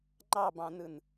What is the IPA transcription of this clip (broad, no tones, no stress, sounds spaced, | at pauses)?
ŋ͡ǃ ɑ b ɑ̃ n ɯ n